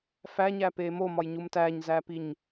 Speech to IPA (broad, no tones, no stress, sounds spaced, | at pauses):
f æ ɲ æ p e m o m ɒ j ɲ u m t æ ɲ z æ p i ɲ